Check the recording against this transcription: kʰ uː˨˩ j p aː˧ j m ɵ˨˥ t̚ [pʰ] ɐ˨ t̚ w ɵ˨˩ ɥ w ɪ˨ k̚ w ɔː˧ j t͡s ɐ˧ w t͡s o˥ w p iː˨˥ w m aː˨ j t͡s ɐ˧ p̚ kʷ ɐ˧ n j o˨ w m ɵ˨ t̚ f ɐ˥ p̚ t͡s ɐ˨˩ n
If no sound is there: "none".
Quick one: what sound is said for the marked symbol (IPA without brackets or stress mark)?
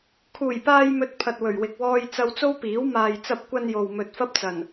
pʰ